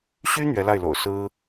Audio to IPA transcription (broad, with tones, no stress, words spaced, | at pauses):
ɕy˥ n̪ɥɛ˧˥la˥˩ɪ̯lo̰˨˩ʊ̯ sɹ̩˥